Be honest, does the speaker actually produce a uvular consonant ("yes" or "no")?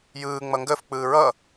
no